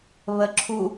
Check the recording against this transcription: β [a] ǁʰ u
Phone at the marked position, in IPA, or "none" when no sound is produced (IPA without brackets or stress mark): ə